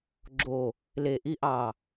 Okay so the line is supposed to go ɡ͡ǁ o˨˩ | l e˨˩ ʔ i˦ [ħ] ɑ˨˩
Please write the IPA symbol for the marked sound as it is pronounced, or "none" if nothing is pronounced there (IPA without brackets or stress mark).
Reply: ʔ